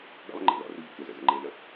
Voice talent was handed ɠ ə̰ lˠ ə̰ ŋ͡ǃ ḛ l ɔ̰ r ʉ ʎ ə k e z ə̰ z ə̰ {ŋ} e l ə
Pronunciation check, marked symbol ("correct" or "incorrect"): incorrect